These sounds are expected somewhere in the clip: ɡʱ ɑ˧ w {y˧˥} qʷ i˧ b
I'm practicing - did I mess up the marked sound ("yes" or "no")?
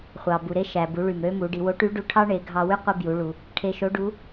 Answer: yes